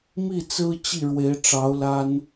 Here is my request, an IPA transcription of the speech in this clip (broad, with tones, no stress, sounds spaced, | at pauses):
m i˥˩ t͡s ɹ̩˥ t͡ɕ i˥˩ ɻ w e˧˥ ɪ̯ ʈ͡ʂ ɑ˧˥ ʊ̯ l a˥ n